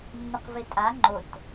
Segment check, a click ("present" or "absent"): present